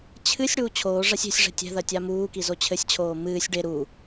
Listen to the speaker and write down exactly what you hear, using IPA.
t͡ɕʰ ɨ sʲ ɽ uː t͡ɕʰ oː ʐ a sʲ e̤ sʲ ʐ ɛ̤ tʲ ɛ̤ ð ɐ tʲ a m uː k i z o t͡ɕʰ ɘ sʲ t͡ɕʰ oː m ɨː sʲ ɖ e ɾ u

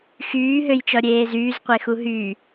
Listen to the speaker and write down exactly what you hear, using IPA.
x yː ɦ ø j t͡ʃ ɔ ɾʲ eː z yː z qʷ e x u ɦ yː

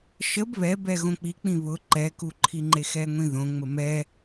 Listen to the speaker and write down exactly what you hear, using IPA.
ʃ ə b β ɛ b ɛ ɣ õ k͡p i k͡p ĩ β ʊ ǃ ɛ k u ǃʰ i ŋ͡ǃ e x ɛ ŋʷ ĩ ð õ ŋ͡m ə m ɛ

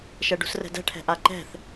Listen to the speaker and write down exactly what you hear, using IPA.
ʃ ɛ ɖ ṳ s r ɛ̤ d ɛ̤ ʈʰ ɛ̤ ʔ a ǃ ɛ̤ θ

